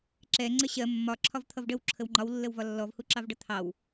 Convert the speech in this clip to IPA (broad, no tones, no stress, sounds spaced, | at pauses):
ǁ ɛ ŋ͡ǀ ə ɕ ɜ mː ɒ ǁʰ ɒ v t̪ʰ ʌ v ɖ ə w ǁʰ ə w ŋ͡ǃ ɒ w lː ə w v ɒ lː ɔ v h u ǁ ɑ v ɖ ʌ t̪ʰ ɑ w